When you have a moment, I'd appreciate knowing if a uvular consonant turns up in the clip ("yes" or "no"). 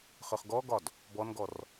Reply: yes